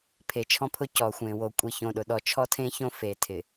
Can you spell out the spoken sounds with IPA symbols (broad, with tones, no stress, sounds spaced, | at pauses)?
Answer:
pʰ e˨ t͡ʃʰ ɔ̃˦ pʰ ʊ˦ c ɔ˨ xʷ ẽ˨ w o˨ kʷʼ i˨ ç õ˨ ɗ ʊ˨ ɗ ɔ˨ t͡ʃʰ ɔ˦ tʰ ẽ˦ ç õ˦ f e˨ tʰ ɪ˨